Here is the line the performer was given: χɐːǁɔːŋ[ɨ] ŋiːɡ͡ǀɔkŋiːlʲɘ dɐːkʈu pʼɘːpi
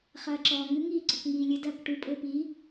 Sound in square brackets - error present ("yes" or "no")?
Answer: no